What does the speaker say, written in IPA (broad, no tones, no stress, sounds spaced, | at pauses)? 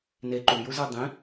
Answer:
n e ǃ u j u z ə˞ dˤ ĩ